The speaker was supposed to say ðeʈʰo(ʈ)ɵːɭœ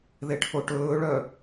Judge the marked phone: correct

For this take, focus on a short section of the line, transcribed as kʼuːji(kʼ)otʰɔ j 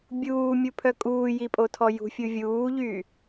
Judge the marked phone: incorrect: pʼ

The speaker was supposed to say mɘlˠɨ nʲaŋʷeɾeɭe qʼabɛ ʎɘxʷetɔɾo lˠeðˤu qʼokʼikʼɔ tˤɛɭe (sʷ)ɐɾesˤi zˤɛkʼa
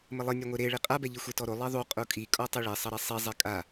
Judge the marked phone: incorrect: sˤ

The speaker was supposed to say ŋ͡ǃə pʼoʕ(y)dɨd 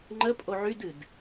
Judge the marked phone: correct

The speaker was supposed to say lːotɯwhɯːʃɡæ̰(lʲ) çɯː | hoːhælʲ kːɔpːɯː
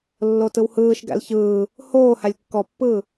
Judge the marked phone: incorrect: l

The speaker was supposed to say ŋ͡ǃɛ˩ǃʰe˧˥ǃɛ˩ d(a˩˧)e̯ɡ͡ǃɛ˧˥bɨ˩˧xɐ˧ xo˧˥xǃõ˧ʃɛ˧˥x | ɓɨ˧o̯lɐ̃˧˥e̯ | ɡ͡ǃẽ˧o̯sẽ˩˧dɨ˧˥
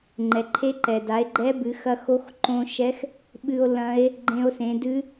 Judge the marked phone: correct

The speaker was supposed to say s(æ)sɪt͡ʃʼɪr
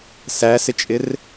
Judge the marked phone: correct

